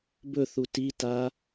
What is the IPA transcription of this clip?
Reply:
bɵθu tita

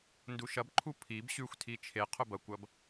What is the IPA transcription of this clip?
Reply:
nduʃɐbǃʰu pʰib ɕʉxʷtʰi t͡ʃʰe qʰɵbɐkʷɐb

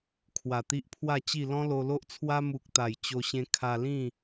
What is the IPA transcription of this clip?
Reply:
kʰwa˨˩t̪i˦ʔpʰwa˥˧t͡ɕi˥˧ lɔ̃˦lo˧lo˦ʔt͡sʰwa˦ mu˨k̚t̪a˨˩j t͡ɕo˧ɕẽ˧ kʰa˧lĩ˥˧

